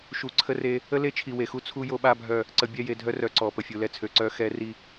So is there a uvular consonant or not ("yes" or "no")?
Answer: no